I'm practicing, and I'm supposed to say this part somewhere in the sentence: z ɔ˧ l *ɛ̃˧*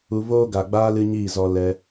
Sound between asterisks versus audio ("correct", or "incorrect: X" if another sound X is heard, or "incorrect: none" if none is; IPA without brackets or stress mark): incorrect: ɛ˧